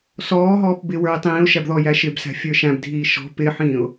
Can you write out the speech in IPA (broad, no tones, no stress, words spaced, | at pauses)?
sɔː ɦɔːpbɪ wə˞ɪ̯tˤĩːʊ̯ʃæb ðɔjæʃɪbsæ̤ fʲə˞ʃæ̃bdʱiː ʃɔ̤ pɪħĩːʊ̯